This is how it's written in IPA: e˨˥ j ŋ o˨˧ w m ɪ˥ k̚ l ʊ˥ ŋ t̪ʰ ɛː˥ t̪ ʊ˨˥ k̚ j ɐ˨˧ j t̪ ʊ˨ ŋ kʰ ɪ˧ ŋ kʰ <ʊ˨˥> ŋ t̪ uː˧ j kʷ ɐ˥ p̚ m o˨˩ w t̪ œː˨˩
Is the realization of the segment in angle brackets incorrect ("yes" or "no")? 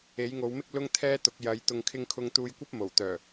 yes